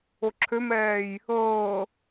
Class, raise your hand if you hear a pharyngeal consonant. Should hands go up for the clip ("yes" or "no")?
no